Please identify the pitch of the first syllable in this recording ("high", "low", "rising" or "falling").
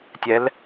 rising